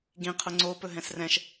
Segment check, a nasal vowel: present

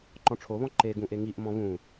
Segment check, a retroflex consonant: present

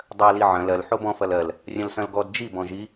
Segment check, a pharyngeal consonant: present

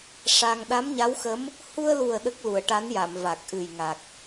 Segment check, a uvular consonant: absent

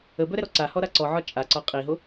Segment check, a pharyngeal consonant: present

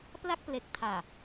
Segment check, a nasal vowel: absent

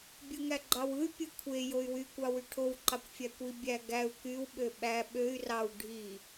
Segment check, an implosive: present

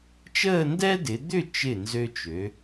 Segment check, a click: absent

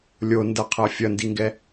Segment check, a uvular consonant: present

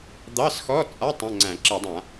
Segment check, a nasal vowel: present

